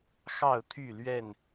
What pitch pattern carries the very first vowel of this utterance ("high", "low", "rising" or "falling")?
falling